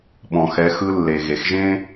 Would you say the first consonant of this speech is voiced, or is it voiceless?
voiced